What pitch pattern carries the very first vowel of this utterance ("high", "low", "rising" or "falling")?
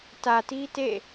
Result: low